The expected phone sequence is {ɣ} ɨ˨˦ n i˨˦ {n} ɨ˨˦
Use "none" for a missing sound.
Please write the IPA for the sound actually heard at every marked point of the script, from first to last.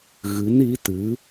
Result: ɣ, t

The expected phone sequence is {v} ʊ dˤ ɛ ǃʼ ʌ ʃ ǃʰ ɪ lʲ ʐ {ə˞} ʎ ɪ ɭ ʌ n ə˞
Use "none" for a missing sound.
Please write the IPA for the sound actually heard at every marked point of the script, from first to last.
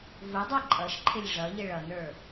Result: v, ʌ

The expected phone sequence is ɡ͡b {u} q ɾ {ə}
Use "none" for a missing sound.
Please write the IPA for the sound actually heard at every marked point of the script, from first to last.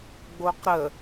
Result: o, ə

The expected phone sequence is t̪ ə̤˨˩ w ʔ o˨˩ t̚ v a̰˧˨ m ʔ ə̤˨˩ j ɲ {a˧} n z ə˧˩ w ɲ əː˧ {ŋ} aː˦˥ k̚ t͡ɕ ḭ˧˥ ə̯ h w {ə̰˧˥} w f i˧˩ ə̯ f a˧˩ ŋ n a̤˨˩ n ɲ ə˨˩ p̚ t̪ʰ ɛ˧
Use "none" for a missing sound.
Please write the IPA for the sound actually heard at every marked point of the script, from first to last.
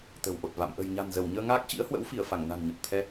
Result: a̤˨˩, ŋ, ə̰˧˥

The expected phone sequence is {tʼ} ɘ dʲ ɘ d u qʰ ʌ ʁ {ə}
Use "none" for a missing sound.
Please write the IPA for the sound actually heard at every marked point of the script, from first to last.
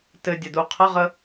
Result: t, ə

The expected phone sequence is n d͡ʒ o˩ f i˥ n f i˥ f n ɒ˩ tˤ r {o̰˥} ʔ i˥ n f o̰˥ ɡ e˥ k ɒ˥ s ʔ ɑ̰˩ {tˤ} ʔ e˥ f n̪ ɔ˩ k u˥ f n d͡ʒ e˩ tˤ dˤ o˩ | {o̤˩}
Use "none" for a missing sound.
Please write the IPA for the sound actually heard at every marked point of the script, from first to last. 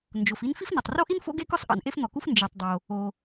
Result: o˥, n, o˩

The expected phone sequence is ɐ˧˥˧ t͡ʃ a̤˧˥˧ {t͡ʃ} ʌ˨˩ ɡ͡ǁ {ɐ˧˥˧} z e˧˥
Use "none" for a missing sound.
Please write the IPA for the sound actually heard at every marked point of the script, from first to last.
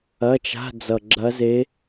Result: d͡z, ɐ˧˥

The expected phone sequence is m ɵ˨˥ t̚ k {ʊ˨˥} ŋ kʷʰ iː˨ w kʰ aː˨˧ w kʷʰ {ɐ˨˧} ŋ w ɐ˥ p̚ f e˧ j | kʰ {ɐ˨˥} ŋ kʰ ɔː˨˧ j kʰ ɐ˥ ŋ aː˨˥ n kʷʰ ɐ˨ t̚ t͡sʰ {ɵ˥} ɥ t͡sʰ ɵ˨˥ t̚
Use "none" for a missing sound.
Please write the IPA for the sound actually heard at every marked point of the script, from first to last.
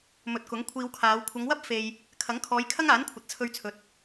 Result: ʊ˨˥, ɐ˨˧, ɐ˨˥, ɵ˧

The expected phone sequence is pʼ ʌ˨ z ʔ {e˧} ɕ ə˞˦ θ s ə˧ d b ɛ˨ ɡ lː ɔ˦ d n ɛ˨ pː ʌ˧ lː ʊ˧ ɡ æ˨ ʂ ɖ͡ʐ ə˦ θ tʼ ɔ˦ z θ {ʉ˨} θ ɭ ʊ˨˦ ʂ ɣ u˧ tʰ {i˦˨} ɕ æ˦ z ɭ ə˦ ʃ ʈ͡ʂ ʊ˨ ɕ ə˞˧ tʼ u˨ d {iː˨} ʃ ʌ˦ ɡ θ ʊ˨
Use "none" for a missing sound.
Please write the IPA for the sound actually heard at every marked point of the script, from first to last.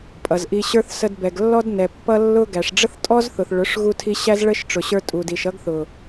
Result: i˧, ʊ˨, i˧, i˨

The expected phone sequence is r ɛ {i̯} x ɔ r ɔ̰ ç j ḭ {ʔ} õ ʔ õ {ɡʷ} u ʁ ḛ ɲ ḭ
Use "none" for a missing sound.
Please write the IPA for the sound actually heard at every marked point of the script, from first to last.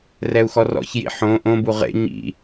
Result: u̯, ħ, b

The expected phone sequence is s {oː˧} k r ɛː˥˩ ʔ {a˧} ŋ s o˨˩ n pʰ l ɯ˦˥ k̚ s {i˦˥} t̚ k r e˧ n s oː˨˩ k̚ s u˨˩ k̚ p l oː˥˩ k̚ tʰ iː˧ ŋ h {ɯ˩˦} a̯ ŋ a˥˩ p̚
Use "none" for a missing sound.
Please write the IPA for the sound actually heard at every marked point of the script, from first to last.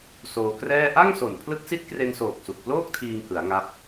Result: oː˧, a˥˩, i˦˥, ɯ˩˦

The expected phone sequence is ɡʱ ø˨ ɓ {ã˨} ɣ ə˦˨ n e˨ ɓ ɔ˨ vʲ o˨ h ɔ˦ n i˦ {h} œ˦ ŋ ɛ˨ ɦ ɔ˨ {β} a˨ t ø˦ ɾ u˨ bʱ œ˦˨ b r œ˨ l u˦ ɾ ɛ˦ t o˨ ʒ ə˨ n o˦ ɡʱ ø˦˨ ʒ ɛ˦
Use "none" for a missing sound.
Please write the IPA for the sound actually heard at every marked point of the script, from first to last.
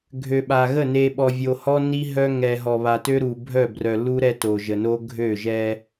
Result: a˨, ɦ, β

